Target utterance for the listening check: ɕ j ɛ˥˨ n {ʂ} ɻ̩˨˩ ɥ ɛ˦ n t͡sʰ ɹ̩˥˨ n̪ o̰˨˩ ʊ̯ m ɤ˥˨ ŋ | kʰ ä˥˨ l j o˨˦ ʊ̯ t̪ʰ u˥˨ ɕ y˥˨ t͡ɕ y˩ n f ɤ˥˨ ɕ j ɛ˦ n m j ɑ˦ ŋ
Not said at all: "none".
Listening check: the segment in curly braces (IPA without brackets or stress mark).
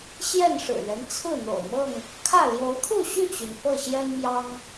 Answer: ʂ